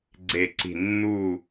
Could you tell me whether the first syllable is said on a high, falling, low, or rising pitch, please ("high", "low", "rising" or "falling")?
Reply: falling